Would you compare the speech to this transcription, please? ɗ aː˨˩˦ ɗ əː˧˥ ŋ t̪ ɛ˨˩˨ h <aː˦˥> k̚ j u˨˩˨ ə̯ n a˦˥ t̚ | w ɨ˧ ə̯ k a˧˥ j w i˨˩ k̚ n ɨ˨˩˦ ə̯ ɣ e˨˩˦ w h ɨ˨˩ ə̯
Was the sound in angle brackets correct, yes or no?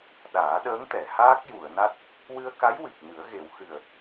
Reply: yes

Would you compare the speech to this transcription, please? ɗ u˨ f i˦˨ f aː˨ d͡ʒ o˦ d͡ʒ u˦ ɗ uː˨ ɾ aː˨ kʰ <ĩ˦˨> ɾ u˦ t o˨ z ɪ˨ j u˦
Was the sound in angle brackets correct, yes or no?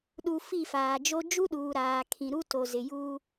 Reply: no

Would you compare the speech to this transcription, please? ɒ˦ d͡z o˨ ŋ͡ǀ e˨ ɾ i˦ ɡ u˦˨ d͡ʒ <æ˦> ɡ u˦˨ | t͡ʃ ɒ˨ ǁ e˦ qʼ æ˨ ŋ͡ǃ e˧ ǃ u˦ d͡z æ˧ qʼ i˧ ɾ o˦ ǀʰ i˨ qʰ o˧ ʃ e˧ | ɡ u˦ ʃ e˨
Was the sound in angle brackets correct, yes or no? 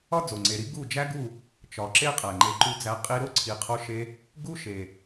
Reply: yes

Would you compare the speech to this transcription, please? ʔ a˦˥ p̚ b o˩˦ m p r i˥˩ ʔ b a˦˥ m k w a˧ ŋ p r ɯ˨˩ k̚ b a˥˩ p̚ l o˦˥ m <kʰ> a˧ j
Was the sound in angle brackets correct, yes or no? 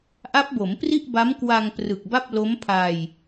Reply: no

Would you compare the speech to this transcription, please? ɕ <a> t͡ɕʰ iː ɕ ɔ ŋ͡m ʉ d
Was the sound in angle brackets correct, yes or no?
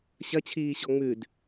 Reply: no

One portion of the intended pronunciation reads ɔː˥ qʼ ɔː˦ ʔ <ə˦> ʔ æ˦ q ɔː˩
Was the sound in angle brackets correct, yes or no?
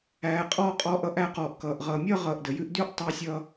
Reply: no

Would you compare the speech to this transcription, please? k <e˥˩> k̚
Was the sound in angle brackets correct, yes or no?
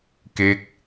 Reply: yes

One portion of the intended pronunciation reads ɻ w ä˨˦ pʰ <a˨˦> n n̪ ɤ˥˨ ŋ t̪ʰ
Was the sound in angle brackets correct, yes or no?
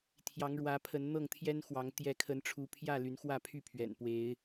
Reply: no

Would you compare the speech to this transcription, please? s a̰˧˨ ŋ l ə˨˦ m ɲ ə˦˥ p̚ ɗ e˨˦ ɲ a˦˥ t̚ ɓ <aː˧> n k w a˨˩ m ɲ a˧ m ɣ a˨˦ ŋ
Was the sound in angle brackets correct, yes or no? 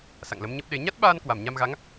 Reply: yes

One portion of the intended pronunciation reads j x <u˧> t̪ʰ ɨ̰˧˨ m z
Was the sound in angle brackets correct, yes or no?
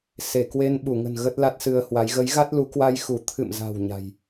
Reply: no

